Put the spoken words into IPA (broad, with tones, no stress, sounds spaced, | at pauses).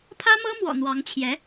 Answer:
pʰ ä˥ m ɤ˥ m w ɔ̰˨˩ n̪ w ɑ˧˥ ŋ t͡ɕʰ j ɛ˧˥